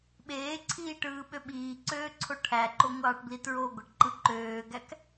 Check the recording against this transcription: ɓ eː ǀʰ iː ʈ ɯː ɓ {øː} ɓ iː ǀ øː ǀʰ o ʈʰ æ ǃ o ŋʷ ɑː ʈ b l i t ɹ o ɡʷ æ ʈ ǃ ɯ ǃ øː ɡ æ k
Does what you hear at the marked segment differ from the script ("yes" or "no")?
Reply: yes